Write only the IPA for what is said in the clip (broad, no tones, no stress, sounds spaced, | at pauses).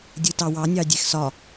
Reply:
dʲ ɯ t ɑ w ɑ nʲ ɑ dʲ ɛ x s ɒ